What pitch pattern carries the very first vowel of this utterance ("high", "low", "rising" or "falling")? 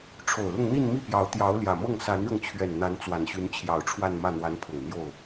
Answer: low